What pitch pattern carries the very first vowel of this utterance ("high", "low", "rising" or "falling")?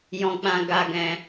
high